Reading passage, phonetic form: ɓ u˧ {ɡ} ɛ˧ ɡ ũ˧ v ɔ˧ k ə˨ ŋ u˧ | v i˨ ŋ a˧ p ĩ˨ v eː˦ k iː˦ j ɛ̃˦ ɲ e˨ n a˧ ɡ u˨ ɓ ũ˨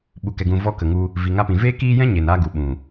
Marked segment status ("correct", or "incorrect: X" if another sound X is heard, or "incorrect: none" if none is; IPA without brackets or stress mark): incorrect: k